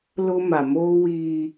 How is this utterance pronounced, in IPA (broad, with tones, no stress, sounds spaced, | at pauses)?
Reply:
l ʊ˦ m a˨ m oː˦ w iː˦